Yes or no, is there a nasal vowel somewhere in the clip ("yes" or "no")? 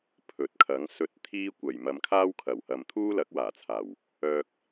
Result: no